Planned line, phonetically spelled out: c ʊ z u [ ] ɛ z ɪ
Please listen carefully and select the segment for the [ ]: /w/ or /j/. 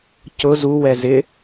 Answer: w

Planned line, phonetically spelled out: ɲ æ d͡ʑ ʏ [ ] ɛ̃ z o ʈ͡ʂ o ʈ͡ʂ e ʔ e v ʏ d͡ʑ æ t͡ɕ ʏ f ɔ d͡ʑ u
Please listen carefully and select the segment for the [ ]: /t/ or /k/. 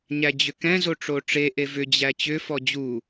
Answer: k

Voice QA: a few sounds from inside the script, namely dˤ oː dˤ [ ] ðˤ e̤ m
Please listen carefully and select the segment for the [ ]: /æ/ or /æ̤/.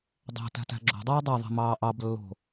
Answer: æ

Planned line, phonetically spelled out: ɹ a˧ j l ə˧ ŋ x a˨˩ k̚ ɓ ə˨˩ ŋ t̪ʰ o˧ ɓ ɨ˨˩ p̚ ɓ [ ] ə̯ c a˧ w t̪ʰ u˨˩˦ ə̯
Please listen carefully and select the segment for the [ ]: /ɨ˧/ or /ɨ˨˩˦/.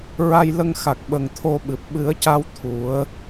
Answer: ɨ˨˩˦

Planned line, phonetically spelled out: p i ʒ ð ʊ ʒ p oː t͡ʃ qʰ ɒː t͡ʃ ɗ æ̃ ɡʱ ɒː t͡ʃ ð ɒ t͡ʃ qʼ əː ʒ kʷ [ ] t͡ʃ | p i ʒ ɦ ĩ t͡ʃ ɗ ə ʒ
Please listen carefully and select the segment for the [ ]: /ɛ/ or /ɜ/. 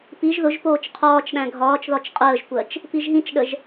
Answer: ɜ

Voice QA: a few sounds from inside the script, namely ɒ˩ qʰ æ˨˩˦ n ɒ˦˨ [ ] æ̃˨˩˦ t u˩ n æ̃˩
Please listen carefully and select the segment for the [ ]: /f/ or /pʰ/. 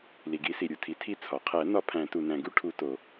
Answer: pʰ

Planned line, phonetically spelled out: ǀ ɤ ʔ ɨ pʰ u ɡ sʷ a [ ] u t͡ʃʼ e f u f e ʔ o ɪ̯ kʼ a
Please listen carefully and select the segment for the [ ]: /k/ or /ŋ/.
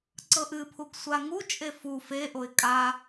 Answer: ŋ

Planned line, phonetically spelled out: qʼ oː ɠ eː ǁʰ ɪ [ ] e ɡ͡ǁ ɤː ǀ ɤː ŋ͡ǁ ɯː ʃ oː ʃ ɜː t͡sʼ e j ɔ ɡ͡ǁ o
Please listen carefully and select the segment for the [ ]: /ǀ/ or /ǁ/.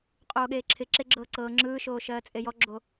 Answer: ǁ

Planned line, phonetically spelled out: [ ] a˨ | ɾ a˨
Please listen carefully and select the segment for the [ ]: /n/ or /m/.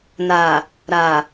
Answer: n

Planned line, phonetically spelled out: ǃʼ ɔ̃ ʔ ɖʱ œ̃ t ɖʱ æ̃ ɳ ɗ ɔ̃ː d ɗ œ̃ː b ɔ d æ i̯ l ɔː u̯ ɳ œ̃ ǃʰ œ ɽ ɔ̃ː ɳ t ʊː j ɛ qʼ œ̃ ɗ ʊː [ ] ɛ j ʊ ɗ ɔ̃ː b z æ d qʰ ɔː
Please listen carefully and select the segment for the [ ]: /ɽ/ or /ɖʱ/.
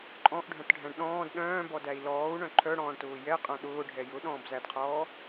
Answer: ɖʱ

